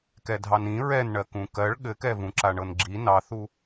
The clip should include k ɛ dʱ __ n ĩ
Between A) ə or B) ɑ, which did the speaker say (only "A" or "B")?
B